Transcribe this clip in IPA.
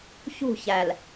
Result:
çṳ˦˨çæ˨l

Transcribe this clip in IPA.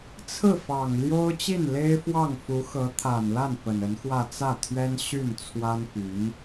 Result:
t͡sʰɹ̩˥˩fɑ˨˩ŋljo˥ʊ̯ t͡ɕi˥˩nle˥ɪ̯fwɑ˥˩ŋ fu˧˥xɤ˧˥ t̪ʰa˨˩nla˥˩n pə˨˩nə˧˥nxwä˥˧ t͡sä˥˩t̪ʰɥɛ˥n ɕy˥˩n t͡sʰwa˥npy˧˥n

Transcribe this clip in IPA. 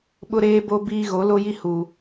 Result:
ɓʊ˦ɾeː˦bo˦biː˦ ɣo˨˦lo˦ji˦huː˨

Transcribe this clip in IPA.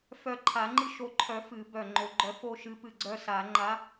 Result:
fœ˧˩ǃʰa˨˩˦ŋ͡ǃɨ˦ ʃo˧˩ǃʰœ˨˩˦ fɨ˨˩˦bœ˧˩ ŋ͡ǃo˨˩˦ɡ͡ǃœ˨˥fo˦ʃɨ˨˥ pɨ˧˩ɡ͡ǀœ˦ sa˨˩˦ ŋ͡ǃa˨˥

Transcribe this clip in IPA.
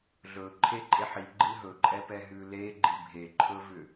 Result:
ɮɵ ǃʰeǃʼeħi ɡ͡ǃɨɦɵǃʼɛpɛ ɦʉleɡ͡ǃi bʱeǃʰɵvʏ

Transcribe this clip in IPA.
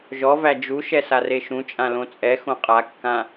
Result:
ʒɔvæ d͡ʒuʃɛ sareʃũt͡ʃʼã lõt͡sʼɛxõ qʼakːã

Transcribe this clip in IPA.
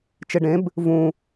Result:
t͡ʃeɖẽb | vũ

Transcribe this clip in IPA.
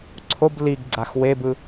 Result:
ǀʰob liɡɡ͡ǀax webɯ

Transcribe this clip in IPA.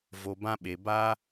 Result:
vo˨bã˧ɓe˨ ba˧

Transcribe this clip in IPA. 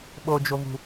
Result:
ɓod͡ʒovṳ

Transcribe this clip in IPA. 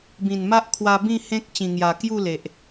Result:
bĩ˨˩nma˦ʔkʰwa˧ bĩ˥˧hẽ˦k̚ t͡ɕĩ˨˩ŋja˨˩ kju˥˧le˨ʔ

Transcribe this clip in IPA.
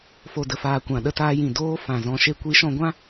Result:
fo˨də˨faː˨ kʷã˨ɗə˧taː˧jĩ˨ doː˧ fã˨ zɔ̃˨ʃe˧kʷi˨˦ʃɔ̃˧ ɡʷã˦

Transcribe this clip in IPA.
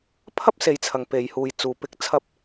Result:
pʰɐ˥p̚se˨˧jt͡sʰɐ˨ŋ pe˨jhuː˨j t͡suː˨pɪ˧k̚ t͡sʰɐ˥p̚

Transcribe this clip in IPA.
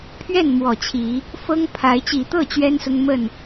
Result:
pʰɥɛ˥˨nmwɔ˨˩t͡ɕʰi˨˦ | fɤ˦ŋpʰa˨˦ɪ̯ t͡ɕi˨˩t̪ɤ˥˨ t͡ɕɥɛ˦nsʊ˦ŋ mə˥˨n

